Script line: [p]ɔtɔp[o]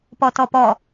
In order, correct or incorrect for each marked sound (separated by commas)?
correct, incorrect